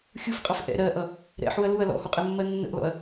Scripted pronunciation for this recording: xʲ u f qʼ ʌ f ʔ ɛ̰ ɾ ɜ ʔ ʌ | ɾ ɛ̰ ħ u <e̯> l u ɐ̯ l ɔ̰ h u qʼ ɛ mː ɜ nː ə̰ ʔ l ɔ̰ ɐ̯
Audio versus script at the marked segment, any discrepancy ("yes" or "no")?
yes